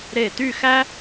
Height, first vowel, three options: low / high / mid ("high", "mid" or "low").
mid